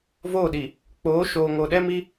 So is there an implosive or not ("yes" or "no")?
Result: yes